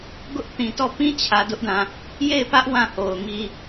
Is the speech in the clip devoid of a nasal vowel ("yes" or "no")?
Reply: no